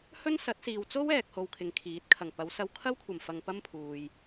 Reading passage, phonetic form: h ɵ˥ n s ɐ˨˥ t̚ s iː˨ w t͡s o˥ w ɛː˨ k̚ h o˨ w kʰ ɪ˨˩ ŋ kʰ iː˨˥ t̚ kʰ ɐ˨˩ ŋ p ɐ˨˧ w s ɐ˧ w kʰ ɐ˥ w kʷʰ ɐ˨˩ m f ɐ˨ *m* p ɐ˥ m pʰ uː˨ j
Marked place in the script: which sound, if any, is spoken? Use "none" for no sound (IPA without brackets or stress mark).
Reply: ŋ